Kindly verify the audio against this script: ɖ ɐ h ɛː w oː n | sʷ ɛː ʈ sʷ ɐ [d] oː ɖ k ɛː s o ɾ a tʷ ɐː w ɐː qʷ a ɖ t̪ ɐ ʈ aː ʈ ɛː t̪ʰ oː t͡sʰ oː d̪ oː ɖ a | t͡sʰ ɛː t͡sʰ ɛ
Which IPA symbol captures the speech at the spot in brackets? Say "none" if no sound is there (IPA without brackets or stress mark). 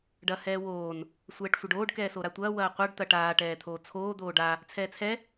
ɖ